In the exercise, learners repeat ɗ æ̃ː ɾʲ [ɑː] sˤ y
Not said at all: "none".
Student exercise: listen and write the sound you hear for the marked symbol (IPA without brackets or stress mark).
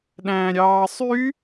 ɑː